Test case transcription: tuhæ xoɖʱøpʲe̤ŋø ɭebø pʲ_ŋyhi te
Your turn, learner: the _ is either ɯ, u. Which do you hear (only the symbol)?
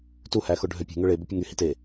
ɯ